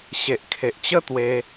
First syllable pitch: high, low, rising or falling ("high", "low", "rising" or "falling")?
low